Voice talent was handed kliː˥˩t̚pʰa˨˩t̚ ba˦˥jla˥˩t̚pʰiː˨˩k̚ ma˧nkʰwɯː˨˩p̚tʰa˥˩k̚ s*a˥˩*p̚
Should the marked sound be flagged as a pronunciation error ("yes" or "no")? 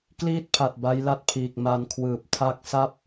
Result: no